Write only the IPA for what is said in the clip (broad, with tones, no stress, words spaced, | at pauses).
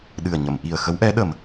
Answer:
ɗɨ˨˩ə̯ɲə˨˩˨m ʔi˨˩ə̯ xə˧˥wʔɛ˧˥ɗə˨˩m